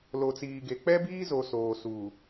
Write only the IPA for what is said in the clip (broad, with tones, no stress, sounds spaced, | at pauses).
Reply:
l o˨ t͡s iː˨ ɡ e˨ k͡p ɛ˦ b iː˦ z o˨ s oː˨ s uː˨